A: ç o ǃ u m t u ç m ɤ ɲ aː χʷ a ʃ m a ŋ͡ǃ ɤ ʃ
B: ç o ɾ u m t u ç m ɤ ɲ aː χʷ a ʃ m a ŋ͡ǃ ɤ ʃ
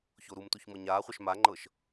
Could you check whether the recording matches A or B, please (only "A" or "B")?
B